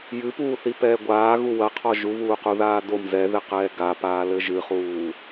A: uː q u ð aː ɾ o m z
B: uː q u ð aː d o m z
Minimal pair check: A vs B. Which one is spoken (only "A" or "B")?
B